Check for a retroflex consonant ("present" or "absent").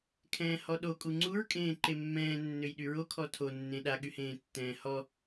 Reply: absent